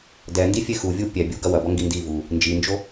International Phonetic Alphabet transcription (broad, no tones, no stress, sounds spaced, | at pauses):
d ɛ n d i fʲ e x u vʲ u pʲ ɛ bʲ u ɡ ɐ w ɐ b ɔ ŋ ɡ i n d i v u | n d͡ʒ i n d͡ʒ o